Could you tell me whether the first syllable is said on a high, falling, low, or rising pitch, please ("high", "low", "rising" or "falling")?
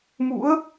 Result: rising